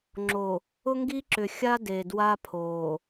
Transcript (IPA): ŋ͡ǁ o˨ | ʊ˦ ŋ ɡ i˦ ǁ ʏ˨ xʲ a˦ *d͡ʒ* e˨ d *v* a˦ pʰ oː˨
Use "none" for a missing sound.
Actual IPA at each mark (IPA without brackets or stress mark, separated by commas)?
d, w